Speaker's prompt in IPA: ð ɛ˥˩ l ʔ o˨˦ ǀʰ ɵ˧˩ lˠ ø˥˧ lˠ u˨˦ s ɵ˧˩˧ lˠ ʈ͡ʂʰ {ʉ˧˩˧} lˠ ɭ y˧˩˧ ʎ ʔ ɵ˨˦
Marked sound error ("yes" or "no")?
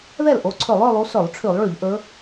no